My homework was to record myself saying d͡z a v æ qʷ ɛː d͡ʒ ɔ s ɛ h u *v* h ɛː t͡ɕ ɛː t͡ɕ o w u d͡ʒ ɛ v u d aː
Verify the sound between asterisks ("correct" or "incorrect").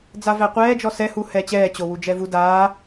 incorrect